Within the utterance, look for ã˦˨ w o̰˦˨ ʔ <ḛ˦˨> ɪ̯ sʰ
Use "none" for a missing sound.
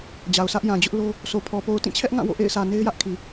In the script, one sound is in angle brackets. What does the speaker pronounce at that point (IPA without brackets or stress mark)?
ḛ˦˨